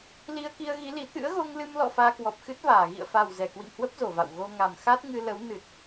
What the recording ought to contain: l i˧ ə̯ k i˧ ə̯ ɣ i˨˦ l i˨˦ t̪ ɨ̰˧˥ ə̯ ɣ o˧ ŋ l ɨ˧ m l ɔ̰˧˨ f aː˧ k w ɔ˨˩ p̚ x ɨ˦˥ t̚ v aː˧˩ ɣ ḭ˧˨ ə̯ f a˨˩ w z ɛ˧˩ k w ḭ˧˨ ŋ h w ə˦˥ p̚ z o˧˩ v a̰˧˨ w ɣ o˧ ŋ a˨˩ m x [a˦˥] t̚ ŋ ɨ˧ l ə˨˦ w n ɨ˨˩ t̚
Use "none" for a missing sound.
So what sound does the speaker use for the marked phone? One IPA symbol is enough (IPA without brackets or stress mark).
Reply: a˦˥